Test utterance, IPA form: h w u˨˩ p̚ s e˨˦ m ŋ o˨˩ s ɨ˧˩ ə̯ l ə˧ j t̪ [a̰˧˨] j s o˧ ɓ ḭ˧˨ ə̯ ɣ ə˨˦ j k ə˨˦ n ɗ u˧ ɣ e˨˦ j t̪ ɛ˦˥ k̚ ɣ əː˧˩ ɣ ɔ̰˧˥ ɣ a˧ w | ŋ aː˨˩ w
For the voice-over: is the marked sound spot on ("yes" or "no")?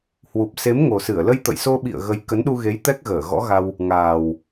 no